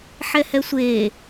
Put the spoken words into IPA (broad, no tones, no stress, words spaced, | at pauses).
ħɛhɛsʷeː